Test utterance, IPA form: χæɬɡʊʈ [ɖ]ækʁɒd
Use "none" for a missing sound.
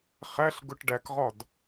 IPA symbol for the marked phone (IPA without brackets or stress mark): ɖ